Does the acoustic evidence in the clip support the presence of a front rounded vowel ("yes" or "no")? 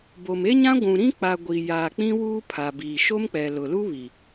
no